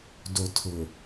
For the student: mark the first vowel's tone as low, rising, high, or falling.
low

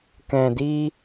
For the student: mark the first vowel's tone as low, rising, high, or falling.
low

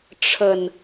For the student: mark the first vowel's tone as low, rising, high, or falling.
low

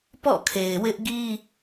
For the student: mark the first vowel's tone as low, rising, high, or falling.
falling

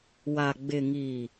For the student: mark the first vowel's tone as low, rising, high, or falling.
low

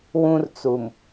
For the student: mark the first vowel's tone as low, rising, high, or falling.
high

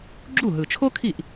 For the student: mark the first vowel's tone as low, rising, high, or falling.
falling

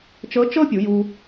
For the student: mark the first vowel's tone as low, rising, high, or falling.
rising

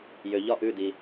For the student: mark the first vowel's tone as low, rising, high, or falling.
low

